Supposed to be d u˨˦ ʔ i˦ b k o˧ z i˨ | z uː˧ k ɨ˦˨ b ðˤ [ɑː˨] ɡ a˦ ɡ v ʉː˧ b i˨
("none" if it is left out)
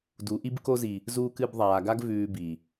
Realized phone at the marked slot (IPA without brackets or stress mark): aː˨